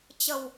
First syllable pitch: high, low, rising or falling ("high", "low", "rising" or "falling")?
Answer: low